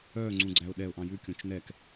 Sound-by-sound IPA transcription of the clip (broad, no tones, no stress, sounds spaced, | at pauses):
œ ŋ͡ǀ ũ ɡ͡ǀ æ ʊ̯ ɗ ɛ ʊ̯ ʔ ɑ̃ j ʉ kʲ õ t͡ʃ n ɛ k